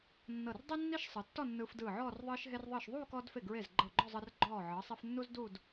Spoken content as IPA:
nː ɤ˧˩ r dˤ i˥ nː i˥ ʃ sˤ ɯ˩˧ tː ɔ˥˧ nː ɯː˧ f d ɯː˧˩ ʕ ɔː˥˧ r ðˤ ɯː˧ ʃ ɦ e˧ r ðˤ ɯː˧˩ ʃ ðˤ uː˥˧ k ɔː˧ d f e˧˩ ɡ ɹ e˧˩ z ɡ͡ǃ ɤ˧˩ ɡ͡ǃ ɔ˥˧ zˤ ɯ˧ r ɡ͡ǃ ɔː˧˩ ʕ ɤ˩˧ sˤ e˧ f nː u˥ z d u˥˧ d

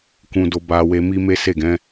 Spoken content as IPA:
k ũ˨ d o˧ b a˧ w e˧ m i˦ m e˦ s e˦˨ ɡ ɛ̃˨˦

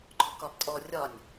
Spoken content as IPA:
ɡ͡ǃ ɔ k ɒ b tʼ ɔ rʲ ɒ nʲ

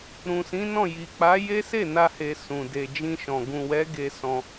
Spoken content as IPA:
ɾ ũ˨ s ĩ˨˦ n ɔ̃˦˨ j i˨ k͡p a˨˦ j e˦ s e˦˨ n a˧ h e˨ s ũ˨ d e˨ d͡ʒ ĩ˧ ʃ ɔ̃˨ ɡ ũ˨ w ɛ˨˦ ɡ e˧ s ɔ̃˧

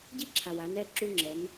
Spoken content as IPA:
ɟ i˦ ǁʰ a˨ w a˨˦ n ɛ˦˨ ǁ u˦ ŋ͡ǁ ɛ˨˦ n

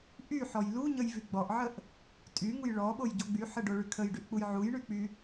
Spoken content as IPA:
ʔ y ħ ɔ j l u ɲ ə j v y ɡ͡b ɔ ʔ ʕ ə ʔ | tʼ y ŋ u j ɭ ɔ ɓ o j ɟ o ɡ͡b y ħ ə ɖ o ɭ y kʰ ə j ɖ y ʔ k͡p u j ʕ u j ɳ y k͡p y

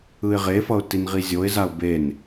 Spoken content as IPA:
ɯ ɪ̯ ʁ e f ʌ ʊ̯ t i n ʁ i zʲ o ɪ̯ z a ʊ̯ b e n

